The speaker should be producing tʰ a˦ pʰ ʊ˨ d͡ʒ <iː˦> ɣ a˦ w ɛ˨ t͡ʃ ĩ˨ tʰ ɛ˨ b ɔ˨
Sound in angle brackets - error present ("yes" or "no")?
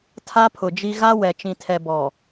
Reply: yes